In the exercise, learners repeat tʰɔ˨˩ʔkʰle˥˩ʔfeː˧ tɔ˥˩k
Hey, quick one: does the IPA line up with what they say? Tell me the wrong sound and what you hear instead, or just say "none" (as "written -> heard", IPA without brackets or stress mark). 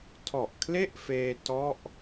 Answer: k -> ʔ